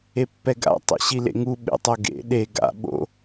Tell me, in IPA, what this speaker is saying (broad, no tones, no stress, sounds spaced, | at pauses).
e pː ɛ ɡ a̰ tˤ ḛ ɕ i l ḛ ŋ u ɓ ḛ tˤ o ɡ ḛ ɗ e ɡ a̰ ɓ o̰